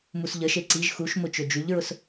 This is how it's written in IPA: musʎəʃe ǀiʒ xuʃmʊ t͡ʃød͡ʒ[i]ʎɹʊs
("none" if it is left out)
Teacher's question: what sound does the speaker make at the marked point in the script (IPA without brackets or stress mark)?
y